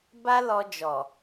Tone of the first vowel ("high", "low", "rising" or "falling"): high